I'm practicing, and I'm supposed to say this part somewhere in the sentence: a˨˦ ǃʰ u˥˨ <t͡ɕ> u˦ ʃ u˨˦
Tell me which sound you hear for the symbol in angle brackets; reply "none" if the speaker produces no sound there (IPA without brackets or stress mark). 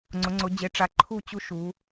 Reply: t͡ɕ